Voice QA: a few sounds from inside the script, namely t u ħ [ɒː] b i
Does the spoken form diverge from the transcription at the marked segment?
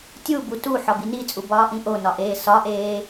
yes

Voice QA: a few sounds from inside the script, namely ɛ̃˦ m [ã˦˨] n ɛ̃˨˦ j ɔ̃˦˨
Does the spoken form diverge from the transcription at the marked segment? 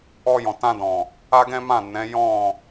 no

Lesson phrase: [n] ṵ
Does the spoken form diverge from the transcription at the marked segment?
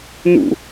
no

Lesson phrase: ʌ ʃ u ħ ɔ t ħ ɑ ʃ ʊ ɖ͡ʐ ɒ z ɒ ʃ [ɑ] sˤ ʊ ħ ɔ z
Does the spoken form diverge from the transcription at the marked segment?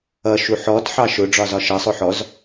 yes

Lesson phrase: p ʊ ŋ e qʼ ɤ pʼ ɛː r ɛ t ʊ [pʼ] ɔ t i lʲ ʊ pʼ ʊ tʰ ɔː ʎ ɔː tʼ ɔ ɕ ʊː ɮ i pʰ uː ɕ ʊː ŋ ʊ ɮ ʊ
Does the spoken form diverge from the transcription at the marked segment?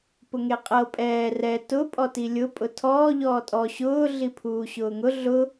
no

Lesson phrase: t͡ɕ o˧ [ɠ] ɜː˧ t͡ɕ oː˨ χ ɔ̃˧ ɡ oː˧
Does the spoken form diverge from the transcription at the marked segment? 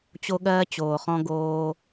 no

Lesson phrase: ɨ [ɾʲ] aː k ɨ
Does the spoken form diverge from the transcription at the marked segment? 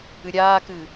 no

